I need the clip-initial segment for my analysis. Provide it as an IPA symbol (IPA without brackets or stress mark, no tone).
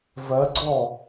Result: v